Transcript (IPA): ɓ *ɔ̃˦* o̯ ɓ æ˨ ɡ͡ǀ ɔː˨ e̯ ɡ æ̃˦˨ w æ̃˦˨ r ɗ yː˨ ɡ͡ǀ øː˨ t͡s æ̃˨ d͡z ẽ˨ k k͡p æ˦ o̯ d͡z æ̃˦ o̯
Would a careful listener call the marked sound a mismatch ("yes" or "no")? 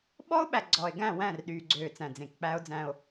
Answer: yes